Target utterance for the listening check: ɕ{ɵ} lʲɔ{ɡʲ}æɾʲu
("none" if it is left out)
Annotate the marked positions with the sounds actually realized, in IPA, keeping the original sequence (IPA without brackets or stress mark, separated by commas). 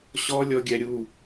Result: ɔ, ɡʲ